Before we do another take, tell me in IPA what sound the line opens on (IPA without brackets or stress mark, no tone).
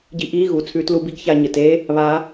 ɟ